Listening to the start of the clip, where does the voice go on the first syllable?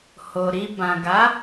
low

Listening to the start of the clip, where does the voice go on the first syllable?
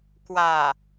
low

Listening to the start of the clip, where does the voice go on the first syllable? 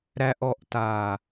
low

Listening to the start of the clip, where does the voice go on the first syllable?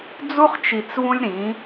high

